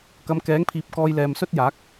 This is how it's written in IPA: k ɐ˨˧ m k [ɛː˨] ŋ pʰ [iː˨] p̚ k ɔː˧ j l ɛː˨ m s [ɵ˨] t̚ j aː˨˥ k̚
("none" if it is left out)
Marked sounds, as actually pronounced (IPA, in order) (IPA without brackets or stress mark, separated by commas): ɛː˨˥, iː˨, ɵ˥